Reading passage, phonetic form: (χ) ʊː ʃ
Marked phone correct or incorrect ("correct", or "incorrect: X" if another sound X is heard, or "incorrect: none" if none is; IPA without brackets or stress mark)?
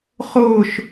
correct